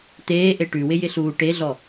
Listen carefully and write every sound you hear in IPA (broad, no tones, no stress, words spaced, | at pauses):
t̪eːʔe ʈʉwɪjɪɬuː ʈeɮɔ